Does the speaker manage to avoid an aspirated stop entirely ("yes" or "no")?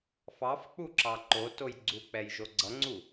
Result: yes